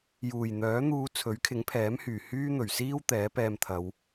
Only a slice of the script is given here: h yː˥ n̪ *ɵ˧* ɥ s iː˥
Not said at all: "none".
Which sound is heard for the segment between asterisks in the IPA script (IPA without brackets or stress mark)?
ɵ˨˩